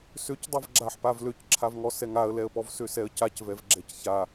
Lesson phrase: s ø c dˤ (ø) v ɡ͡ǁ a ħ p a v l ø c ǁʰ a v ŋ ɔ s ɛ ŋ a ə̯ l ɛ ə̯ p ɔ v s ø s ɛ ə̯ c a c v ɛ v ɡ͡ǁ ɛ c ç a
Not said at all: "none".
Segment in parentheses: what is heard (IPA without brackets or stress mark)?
ɛ